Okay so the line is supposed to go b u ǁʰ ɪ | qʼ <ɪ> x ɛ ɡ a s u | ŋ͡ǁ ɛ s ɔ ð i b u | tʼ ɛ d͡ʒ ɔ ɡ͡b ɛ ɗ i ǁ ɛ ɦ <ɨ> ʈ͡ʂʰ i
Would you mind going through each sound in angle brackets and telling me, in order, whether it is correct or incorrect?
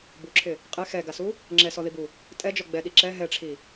correct, incorrect

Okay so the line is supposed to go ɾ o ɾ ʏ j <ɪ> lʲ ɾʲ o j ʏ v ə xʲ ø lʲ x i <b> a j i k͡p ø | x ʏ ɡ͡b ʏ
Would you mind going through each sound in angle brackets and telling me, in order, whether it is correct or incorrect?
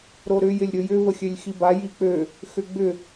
correct, correct

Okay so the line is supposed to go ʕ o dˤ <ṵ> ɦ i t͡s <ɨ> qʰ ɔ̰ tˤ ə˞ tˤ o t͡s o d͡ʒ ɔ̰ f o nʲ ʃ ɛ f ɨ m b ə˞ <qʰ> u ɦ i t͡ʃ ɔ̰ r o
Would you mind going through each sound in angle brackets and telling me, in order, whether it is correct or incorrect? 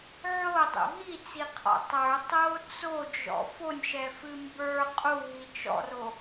correct, incorrect, incorrect

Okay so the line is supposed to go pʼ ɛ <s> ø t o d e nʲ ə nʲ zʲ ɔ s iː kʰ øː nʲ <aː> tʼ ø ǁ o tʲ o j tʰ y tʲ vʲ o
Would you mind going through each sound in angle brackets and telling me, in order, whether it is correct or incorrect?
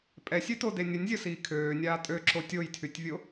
incorrect, correct

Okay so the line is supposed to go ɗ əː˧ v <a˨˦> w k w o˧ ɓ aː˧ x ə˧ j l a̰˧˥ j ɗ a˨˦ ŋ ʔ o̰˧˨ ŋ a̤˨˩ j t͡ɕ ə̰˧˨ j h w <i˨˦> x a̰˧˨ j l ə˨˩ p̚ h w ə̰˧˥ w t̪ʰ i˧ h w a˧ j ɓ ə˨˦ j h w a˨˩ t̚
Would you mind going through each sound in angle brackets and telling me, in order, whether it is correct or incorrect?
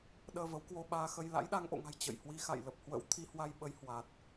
incorrect, correct

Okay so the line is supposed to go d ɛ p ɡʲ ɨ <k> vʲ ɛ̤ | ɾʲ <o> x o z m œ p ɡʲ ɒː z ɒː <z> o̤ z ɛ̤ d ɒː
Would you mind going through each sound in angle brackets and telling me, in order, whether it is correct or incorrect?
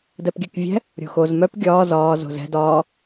correct, incorrect, correct

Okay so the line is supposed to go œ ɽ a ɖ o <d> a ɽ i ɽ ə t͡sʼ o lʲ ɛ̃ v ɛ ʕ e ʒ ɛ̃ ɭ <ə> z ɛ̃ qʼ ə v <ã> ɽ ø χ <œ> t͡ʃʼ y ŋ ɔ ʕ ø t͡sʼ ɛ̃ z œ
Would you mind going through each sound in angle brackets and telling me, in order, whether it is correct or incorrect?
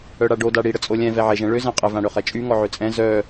correct, incorrect, correct, incorrect

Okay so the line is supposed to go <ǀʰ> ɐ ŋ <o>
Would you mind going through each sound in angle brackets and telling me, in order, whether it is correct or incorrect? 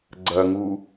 incorrect, incorrect

